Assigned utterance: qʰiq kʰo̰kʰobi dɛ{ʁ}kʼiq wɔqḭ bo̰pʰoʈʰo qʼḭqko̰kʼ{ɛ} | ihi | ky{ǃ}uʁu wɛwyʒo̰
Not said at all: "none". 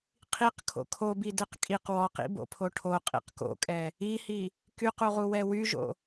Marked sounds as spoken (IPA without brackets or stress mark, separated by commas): q, ɛ, q